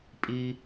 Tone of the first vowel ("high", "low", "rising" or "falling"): high